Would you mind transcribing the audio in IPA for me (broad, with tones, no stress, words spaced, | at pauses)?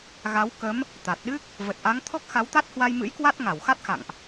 ɣa˨˦w kə˨˦m | t̪a˨˩t̚ɗɨ˦˥k̚ | və˨˩t̚ʔa˨˦ŋ t̪ʰɔ˦˥k̚xa˨˦wt̪a˦˥t̚ hwa˧jmɨ̰˧˥jkwa˦˥t̚ ŋa˧˩wxa˦˥t̚ xa̰˧˨ŋʔ